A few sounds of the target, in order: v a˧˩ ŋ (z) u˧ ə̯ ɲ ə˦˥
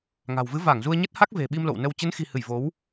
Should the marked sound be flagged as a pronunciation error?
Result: no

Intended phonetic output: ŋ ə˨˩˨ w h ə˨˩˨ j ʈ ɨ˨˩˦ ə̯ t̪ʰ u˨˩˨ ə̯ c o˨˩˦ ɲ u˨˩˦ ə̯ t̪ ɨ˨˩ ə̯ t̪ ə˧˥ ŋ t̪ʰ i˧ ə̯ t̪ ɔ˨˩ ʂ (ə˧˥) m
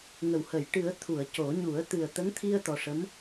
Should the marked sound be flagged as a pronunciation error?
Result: no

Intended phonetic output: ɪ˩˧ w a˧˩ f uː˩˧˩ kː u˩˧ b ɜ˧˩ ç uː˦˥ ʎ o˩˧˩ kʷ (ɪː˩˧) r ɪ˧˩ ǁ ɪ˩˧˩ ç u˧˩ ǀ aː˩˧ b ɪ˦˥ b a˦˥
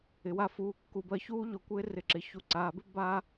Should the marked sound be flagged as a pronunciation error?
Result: yes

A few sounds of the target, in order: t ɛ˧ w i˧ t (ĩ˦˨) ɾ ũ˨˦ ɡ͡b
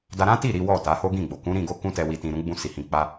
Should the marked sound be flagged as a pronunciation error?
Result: yes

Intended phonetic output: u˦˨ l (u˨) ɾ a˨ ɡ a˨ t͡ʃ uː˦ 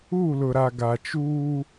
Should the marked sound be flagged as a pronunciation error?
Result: yes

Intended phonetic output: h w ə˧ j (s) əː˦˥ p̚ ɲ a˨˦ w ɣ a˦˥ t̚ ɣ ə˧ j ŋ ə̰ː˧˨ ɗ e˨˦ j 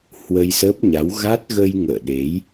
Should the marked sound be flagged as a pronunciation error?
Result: no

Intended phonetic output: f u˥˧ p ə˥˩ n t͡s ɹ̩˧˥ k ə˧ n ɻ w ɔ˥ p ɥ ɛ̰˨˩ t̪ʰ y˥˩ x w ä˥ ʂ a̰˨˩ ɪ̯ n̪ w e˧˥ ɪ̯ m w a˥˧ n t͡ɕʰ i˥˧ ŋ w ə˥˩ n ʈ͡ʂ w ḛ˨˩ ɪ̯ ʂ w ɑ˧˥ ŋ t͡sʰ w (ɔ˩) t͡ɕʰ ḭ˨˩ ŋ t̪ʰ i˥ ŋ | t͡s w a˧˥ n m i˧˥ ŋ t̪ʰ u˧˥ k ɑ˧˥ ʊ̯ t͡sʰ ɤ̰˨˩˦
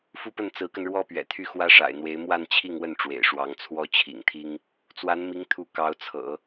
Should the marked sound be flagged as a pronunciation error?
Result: yes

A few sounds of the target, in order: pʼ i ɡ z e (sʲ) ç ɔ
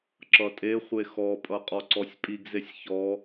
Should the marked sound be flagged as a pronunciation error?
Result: no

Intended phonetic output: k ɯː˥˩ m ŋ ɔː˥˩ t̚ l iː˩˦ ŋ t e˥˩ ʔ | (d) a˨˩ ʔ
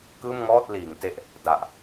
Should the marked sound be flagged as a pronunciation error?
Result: no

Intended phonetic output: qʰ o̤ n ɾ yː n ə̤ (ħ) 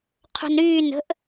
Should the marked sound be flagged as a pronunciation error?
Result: yes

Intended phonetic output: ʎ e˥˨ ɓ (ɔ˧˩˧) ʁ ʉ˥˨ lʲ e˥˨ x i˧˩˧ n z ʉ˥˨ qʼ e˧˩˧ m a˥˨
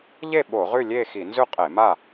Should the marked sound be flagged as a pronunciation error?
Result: yes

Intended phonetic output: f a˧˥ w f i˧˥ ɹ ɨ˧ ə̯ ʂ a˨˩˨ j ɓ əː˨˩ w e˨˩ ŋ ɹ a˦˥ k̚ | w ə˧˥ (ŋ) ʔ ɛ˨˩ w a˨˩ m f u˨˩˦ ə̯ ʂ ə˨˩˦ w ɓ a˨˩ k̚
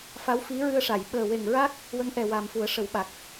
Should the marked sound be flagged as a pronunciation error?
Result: no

